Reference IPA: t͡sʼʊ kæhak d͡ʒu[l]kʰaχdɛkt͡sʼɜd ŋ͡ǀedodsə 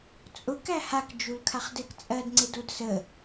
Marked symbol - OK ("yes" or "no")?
yes